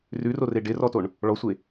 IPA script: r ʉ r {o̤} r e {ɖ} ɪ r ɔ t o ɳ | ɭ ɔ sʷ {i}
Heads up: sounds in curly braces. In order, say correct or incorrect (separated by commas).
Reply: incorrect, correct, incorrect